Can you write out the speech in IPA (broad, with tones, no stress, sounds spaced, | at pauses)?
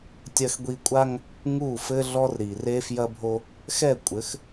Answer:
tʲ ɐ˦ x ɡʷ i˦ kʷʼ a˦ ŋ | ŋ u˦˨ f ɘ˦ ɮ ɔ˦ r ɾ i˨ r e˦ f j ɐ˦ bʱ o˦ | x ɛ˦˨ kʷʼ ɘ˨˦ x